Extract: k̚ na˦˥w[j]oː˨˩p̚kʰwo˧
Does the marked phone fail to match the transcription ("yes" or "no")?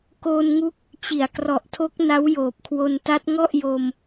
no